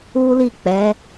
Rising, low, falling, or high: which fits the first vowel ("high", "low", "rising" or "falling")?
high